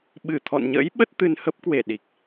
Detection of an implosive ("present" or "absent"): present